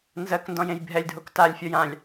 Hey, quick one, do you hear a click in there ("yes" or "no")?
no